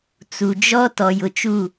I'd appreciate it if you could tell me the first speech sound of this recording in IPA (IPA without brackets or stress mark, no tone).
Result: t͡s